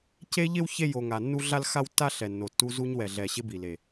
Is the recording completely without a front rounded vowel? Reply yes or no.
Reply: yes